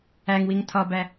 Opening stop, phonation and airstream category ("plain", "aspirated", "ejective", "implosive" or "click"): aspirated